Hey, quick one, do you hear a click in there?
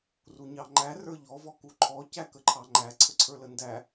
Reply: yes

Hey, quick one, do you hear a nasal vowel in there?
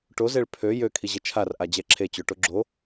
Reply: no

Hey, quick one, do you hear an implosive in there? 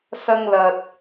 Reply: no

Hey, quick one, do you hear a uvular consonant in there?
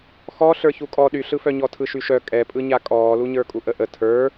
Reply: no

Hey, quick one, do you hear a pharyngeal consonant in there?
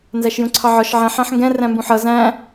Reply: yes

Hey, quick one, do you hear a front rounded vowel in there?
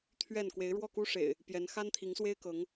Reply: no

